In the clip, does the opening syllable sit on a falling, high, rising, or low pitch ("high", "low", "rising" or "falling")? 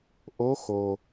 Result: rising